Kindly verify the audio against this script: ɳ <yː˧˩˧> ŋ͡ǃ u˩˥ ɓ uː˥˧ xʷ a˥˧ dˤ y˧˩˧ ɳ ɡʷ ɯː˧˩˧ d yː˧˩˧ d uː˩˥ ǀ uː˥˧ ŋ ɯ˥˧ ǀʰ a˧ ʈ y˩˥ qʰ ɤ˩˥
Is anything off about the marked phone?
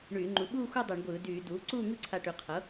no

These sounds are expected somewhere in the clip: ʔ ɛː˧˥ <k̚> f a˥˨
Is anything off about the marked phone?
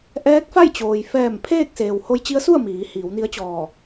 no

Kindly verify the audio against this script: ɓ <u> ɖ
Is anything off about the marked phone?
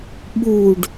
no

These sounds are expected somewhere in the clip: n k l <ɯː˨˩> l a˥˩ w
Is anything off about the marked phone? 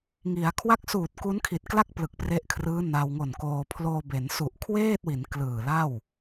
no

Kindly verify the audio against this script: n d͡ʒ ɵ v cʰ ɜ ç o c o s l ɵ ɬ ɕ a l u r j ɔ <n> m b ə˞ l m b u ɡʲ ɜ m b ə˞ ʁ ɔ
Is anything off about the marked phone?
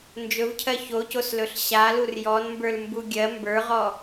no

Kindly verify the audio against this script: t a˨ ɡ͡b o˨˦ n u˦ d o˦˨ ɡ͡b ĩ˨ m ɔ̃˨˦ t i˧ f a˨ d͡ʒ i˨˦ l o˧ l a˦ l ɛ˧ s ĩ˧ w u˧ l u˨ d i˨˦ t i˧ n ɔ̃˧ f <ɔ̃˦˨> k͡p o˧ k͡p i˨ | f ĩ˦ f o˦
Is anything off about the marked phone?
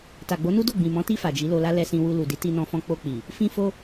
yes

